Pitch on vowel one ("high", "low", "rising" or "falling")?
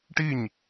falling